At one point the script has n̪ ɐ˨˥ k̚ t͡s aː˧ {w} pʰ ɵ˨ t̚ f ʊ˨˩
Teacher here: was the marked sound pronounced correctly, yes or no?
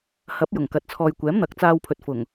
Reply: yes